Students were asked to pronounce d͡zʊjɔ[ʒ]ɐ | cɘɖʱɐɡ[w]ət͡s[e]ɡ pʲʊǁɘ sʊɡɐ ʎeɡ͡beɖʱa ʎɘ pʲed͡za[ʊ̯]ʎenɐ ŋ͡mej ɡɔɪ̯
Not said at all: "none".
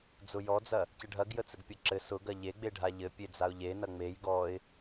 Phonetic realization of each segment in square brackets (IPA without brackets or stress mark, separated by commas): d͡z, j, ɘ, ʊ̯